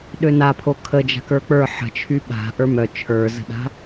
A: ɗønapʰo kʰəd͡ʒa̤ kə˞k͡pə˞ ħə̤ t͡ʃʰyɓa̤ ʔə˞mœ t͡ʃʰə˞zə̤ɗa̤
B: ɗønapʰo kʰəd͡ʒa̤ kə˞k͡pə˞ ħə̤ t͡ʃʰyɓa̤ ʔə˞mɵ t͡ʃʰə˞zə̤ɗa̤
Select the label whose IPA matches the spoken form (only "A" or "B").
A